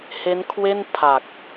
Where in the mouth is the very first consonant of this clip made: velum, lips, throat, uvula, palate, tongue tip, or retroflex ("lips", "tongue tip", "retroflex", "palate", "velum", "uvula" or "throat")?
throat